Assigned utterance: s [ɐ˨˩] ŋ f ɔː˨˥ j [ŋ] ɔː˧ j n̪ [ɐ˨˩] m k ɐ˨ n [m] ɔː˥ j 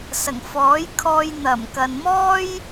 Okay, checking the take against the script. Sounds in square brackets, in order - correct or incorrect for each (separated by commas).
correct, incorrect, correct, correct